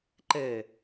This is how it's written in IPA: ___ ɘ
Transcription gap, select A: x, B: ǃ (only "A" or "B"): B